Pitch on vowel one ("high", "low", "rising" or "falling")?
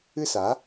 falling